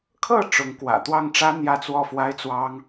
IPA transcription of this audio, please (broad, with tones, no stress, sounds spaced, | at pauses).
kʰ ɤ˥˩ ʈ͡ʂ ʊ˧˥ ŋ k w ä̰˨˩ t̪ w ɑ˥˩ ŋ ʈ͡ʂ ä˥ n̪ j ä˥˧ t͡s w ɔ˥˩ f w a˥ ɪ̯ t͡s w ɑ˥ ŋ